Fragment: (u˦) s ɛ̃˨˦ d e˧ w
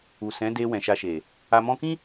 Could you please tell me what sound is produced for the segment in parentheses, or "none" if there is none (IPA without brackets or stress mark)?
u˨